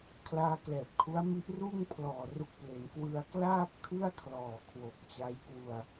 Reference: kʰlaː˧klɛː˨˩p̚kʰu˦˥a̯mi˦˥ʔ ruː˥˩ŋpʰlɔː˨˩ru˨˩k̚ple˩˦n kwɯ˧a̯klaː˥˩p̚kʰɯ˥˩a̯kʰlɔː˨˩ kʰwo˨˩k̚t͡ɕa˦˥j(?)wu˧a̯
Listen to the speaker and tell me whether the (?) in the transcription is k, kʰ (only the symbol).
k